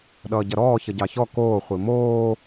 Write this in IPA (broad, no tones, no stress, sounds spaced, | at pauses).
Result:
ɗ ʌː ɟ ʌ ɾ ɔː ç ʌ ɟ ɑ ç ɔ k oː χʷ i m oː